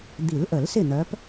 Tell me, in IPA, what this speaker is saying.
d̪ i˨˩˦ l ʔ ə˨˩˦ l s ɪ˥˩ n̪ œ˨˦ p

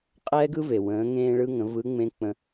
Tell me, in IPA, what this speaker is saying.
qʼ ɛː˥ ɡ ɯ˥ v e˩ w ə̃ː˩˧ ŋ ẽː˧ ɭ ɯ˧ ŋ ə̃˩˧ v ɯ˧˥ ŋ͡m ẽ˧˥ k͡p ə̃˧

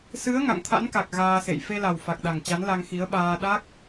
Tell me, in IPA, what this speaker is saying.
s ɨ˨˦ ə̯ ŋ a̰˧˨ ŋ t̪ʰ a̰˧˥ n k a˨˩ k̚ ɣ aː˧ s ḛ˧˨ j f e˧ l a˨˩ w f a˨˩ k̚ ɗ a˨˩ ŋ t͡ɕ a˨˦ n l a˧ ŋ x i˨˦ ə̯ ɓ aː˧ ɗ a˦˥ k̚

